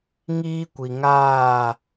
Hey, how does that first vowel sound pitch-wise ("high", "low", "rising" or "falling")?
high